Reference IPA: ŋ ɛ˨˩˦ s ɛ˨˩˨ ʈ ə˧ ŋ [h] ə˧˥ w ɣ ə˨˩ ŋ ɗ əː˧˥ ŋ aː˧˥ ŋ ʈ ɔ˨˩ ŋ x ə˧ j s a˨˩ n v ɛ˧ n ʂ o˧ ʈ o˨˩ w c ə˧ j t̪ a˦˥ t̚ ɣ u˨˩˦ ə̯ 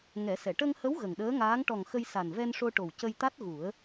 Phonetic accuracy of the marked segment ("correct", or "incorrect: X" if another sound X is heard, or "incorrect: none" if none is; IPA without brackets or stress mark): correct